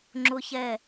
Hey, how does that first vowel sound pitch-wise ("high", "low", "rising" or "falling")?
high